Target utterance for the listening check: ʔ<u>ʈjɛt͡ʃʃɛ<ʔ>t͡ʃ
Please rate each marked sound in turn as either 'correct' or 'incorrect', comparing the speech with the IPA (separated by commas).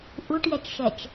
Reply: correct, incorrect